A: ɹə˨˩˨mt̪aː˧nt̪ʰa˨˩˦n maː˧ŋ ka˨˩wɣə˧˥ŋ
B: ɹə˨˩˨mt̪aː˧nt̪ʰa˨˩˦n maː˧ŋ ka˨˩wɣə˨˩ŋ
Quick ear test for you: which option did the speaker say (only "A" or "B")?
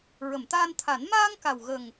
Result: B